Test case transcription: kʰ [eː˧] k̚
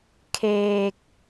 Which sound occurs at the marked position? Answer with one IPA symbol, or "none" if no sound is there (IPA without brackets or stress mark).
eː˧